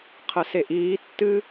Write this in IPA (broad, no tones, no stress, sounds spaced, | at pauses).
qʰ ə s e ʔ iː tː ɨ